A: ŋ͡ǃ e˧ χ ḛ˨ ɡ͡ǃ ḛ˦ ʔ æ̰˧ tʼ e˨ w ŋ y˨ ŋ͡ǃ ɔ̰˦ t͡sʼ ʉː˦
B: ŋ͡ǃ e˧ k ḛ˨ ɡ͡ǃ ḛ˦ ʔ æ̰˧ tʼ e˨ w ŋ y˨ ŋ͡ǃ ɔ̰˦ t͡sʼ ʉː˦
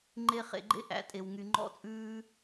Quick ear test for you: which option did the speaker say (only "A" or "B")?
A